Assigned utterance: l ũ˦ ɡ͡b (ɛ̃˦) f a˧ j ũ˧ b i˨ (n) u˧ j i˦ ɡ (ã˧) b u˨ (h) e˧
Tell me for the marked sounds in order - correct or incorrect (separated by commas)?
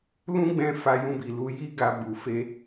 incorrect, incorrect, incorrect, incorrect